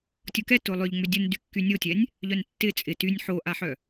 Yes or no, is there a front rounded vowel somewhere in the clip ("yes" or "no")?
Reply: yes